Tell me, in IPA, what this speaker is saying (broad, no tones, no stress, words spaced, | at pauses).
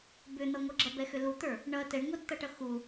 bʏn̪ʌŋʷʌ ɡ͡ǁʌbɛxʏ lut̪ə˞ | ɳʌ tɛɳŋʷʌtt̪ʌʈʌ xu